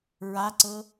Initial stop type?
click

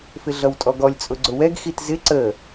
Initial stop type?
ejective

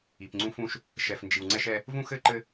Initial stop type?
plain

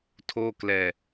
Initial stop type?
aspirated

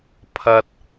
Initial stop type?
aspirated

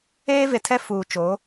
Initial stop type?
aspirated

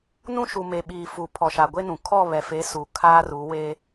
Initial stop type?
implosive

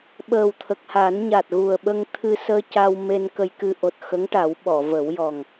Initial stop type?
implosive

